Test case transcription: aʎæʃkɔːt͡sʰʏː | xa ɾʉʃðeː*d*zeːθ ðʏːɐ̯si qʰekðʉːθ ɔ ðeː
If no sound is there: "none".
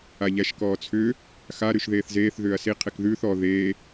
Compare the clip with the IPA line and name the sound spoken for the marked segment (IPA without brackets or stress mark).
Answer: θ